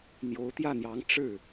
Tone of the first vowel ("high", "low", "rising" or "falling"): rising